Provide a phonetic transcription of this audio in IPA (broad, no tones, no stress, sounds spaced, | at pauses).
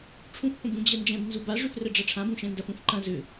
ʈ͡ʂʰ ũ f p ɐ̃ b ũ d͡ʑ ɛ n d͡ʒ ɛ̃ b n z u b a ʐ ʏ f r ɛ ɖ͡ʐ ɐ ʈ͡ʂʰ ã b ũ ʃ ɛ̃ n d ɐ f ũ f ǃ ɐ̃ z ʏ